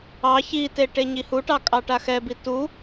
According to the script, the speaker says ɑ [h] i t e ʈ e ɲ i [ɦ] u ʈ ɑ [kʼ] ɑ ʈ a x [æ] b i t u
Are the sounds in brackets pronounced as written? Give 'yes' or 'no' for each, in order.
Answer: no, no, yes, no

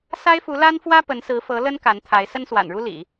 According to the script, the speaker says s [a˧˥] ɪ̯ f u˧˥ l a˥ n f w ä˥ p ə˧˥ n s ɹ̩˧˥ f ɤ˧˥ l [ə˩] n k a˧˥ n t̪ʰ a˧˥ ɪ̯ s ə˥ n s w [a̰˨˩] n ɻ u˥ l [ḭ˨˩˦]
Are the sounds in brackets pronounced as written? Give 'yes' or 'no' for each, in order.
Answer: no, no, yes, yes

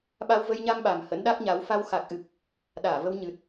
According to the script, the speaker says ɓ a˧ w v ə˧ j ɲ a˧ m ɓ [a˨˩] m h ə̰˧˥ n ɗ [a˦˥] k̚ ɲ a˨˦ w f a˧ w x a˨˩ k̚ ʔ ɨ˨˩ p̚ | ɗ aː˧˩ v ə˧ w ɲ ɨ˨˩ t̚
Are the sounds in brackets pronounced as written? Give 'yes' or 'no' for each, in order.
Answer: yes, yes

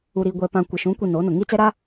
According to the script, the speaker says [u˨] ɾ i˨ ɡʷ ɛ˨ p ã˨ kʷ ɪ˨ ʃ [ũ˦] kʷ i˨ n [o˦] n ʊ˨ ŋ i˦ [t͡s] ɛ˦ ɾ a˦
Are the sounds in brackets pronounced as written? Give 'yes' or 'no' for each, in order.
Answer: yes, no, no, yes

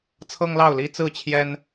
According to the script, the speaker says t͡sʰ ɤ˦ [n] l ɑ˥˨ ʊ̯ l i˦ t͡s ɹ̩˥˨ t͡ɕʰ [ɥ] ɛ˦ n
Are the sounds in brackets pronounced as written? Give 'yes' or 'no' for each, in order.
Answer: no, no

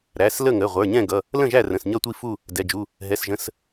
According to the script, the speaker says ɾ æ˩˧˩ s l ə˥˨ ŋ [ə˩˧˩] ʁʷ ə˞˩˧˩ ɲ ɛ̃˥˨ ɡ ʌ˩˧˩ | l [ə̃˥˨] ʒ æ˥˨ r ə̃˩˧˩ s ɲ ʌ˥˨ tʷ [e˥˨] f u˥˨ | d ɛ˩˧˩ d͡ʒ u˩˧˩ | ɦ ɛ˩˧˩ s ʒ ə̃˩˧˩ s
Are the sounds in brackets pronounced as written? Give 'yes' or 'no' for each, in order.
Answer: yes, yes, no

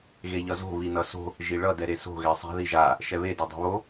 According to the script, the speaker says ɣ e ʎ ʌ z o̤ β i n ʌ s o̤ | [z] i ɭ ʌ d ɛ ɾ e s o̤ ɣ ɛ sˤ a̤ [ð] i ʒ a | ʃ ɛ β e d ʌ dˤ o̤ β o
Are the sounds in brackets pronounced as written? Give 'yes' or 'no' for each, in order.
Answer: no, yes

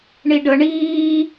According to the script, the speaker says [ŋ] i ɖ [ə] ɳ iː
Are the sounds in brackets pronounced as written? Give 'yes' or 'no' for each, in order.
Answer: no, yes

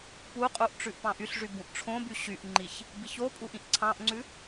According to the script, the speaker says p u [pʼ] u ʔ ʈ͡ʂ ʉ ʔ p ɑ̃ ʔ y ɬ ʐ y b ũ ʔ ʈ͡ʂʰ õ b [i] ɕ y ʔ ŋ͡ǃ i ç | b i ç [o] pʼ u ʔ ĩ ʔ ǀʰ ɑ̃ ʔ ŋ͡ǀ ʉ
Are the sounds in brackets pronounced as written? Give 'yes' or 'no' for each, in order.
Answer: no, no, yes

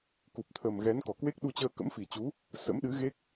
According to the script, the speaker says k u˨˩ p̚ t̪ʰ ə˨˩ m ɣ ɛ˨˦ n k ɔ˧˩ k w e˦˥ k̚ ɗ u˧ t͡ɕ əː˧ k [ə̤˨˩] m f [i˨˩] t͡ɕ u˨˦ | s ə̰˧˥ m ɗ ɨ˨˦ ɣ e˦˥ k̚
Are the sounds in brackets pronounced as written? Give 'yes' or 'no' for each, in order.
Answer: no, yes

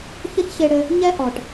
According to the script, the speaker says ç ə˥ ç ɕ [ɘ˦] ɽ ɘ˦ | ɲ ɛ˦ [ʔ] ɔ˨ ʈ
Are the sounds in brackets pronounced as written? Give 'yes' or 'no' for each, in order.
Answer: no, yes

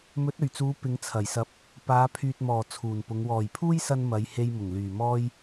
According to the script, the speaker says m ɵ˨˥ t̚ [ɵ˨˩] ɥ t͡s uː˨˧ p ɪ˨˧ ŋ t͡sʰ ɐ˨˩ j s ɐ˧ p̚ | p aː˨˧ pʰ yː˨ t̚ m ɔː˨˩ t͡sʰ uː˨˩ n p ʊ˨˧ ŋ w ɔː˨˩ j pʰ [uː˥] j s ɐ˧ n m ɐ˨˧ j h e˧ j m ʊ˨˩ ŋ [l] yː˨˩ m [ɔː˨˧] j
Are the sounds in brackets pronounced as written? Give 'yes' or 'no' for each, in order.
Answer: yes, yes, yes, no

